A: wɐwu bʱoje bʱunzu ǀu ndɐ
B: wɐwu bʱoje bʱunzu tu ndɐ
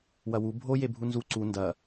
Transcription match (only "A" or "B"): A